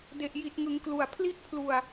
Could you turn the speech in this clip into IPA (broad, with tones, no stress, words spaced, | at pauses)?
de˨˩ʔji˨˩t̚ŋɯ˩˦ŋklu˨˩a̯ pʰli˦˥ʔpʰlu˧a̯